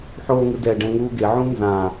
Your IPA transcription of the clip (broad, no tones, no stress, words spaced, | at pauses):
ħoːŋɯdɛ ɖɛ̃ŋuːɡe ʕũnzã